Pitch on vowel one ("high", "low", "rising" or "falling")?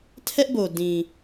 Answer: high